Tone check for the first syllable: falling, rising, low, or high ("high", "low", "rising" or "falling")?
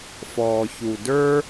low